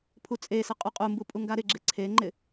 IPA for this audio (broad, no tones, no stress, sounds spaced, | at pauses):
pʰ u t͡sʼ e s ɪ qʼ u qʼ u m b u pʼ u ŋ ɡ a ɾ ɪ ɡ͡ǁ ɪ ǀʰ e ŋ͡ǃ ɪ